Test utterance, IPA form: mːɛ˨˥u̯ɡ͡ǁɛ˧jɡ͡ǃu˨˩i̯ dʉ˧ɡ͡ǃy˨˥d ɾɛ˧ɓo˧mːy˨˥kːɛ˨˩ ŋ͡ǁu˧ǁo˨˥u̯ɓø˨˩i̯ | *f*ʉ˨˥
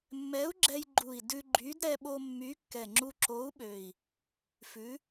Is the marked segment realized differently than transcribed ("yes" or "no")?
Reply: no